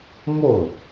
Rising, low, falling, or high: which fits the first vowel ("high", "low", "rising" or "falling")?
falling